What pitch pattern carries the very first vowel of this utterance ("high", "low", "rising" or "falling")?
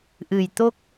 low